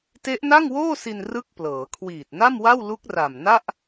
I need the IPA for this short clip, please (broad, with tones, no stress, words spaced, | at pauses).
te˦˥ʔ na˥˩ŋwoː˥˩si˧n rɯ˥˩k̚plɤː˩˦ kʰwiː˨˩t̚na˥˩mwa˥˩w lu˦˥k̚ra˨˩mna˥˩ʔ